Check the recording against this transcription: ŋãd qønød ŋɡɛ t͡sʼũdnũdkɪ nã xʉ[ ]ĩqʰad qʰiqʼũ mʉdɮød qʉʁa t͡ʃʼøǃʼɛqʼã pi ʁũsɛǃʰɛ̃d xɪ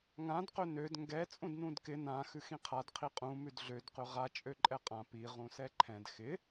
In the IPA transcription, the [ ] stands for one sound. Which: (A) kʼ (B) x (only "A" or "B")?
B